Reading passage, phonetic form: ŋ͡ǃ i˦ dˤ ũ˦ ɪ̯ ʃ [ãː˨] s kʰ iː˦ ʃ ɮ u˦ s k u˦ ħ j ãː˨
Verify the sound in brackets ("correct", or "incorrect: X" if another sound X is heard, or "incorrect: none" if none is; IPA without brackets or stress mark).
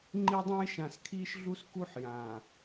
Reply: incorrect: ã˨